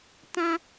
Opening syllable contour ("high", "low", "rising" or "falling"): high